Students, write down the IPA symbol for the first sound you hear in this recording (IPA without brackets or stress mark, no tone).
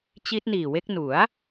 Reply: t͡ɕ